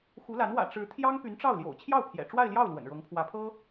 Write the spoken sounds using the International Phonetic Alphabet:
x u˧˥ l a˧˥ n w ä̰˨˩ ʈ͡ʂ ɻ̩˧˥ t̪ʰ j ɑ˥ ŋ p y˧˥ n ʈ͡ʂ ɑ˥˩ ʊ̯ l j o̰˨˩ ʊ̯ t͡ɕʰ j ɑ˥˩ ʊ̯ pʰ j ɛ̰˨˩ ʈ͡ʂ w a˥˧ ɪ̯ l j ɑ˥˩ ʊ̯ l w ə̰˨˩ n ɻ ɤ˧˥ ŋ pʰ w ä˧˥ pʰ ɤ˥

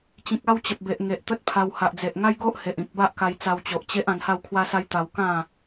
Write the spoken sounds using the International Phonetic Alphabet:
t͡ɕ ĩ˨ k̚ a˥˧ w t͡ɕ ə˨ p̚ b e˨ ʔ ŋ e˨ ʔ t̪ ə˦ t̚ pʰ a˧ w h a˨ ʔ d͡z e˨ ʔ ŋ a˦ j ɡ o˦ ʔ h e˨ ʔ ĩ˨ k̚ b a˦ ʔ k a˧ j t͡s a˧ w t͡ɕ o˨ ʔ t͡ɕ e˦ ʔ ã˧ n h a˥˧ w kʰ w a˦ s a˦ j t̪ a˧ w k ã˥˧

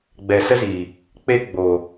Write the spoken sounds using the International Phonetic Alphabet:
ɡ͡b ɛ˨ s ə˦ z iː˨ | k͡p e˦ ɡ͡b oː˨

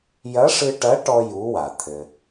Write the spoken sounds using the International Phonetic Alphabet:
j ɐ˧˥ ʂ ɨ˧ ʈ ɐ˧˥ ʈ ɔ˥ j u˧˥ w a˩ t̪ʰ ɘ˩

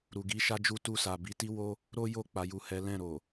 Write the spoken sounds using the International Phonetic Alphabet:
ɾ u˨ ɡ i˨˦ ʃ a˦ d͡ʒ u˦ t u˦˨ s a˨ b i˨˦ t i˦ w o˦ | ɾ o˦ j o˦˨ k͡p a˨˦ j u˦˨ h ɛ˨˦ l ɛ̃˦˨ ɾ o˨

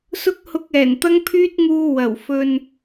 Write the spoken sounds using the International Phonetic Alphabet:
s ʊ˥ k̚ h ʊ˧ k̚ ɛː˨˩ n t̪ ɐ˥ ŋ pʰ yː˥ t̚ ŋ uː˧ w ɐ˨˩ w f ɵ˧ n

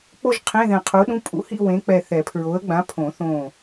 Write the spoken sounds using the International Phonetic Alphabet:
k͡p o˥˧ ʒ qʰ ẽ˧˥˧ ð ɛ̃˧˩ qʰ u˨˥ ɗ ũ˧˥˧ pʼ ṵ˨˥ h ḭ˥˧ w ẽ˨˥ k͡p ɛ˧˩ θ ɛ˨˩˦ pʰ ɹ o˨˥ ə̯ ɡ͡b ã˨˥ pʰ õ˨˩˦ θ õ˧˩

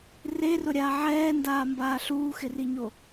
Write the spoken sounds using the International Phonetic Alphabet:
r e r ʊ ɾʲ aː ʕ ɛː n d aː m b aː ɬ uː x ɪ r i ɲ o

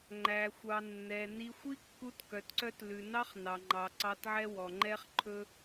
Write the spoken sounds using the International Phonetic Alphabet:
ŋ͡ǃ æ˨ xʷ ɑ˨ nː ɛ˨ n i˧ xʷ i˦ kː u˧ t k œ˨ t ǀ œ˧ t l ʉ˨ n ɑ˦ χ n ɑ˨ ŋ͡ǃ ɑ˨ ǀ ɑ˧ t ʕ ɛ˦ w ɔ˨ ŋ͡ǃ ɛ˦ χ ǃʰ ɵ˦

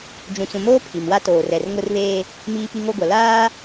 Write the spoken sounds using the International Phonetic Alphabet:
d͡ʒ ũ˨ t͡s ũ˨ m oː˦ pʰ i˨ m w a˦ t oː˨ r ɛ˨ r ŋ ʊ˦ r β eː˦ | m iː˦ p i˦ ŋ o˦ ɡʷ a˨ l aː˦

